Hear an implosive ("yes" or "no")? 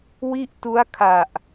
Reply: no